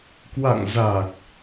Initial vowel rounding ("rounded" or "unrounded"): unrounded